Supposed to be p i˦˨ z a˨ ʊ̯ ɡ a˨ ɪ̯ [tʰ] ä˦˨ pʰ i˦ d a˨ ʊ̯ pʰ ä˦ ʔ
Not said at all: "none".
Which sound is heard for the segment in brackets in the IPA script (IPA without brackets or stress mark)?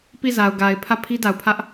pʰ